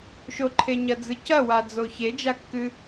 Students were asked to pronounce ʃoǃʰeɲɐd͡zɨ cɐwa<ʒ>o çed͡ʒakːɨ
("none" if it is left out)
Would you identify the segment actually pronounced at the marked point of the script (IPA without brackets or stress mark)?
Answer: d͡z